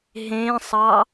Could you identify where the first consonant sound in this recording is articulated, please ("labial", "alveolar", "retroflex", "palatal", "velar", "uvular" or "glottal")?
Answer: glottal